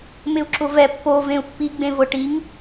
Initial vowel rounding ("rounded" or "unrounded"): unrounded